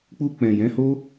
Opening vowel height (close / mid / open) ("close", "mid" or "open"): close